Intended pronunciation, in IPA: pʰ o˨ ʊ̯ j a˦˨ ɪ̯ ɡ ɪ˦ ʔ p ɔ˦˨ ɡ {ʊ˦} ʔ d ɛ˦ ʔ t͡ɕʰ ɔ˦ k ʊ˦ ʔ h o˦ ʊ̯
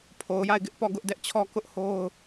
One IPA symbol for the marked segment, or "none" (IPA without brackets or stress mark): ʊ˦